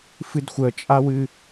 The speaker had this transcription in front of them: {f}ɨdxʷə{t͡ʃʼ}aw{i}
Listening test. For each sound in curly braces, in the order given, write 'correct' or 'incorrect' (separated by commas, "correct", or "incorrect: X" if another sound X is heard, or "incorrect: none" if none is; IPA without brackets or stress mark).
correct, correct, incorrect: ɨ